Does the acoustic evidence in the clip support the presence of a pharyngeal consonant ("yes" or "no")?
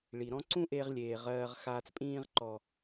no